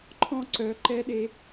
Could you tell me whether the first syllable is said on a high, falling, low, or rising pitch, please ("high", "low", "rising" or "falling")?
high